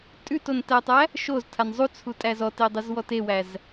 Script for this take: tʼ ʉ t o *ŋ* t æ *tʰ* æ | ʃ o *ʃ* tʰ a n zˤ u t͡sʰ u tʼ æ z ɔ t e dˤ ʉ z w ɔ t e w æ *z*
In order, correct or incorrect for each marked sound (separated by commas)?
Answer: incorrect, incorrect, incorrect, correct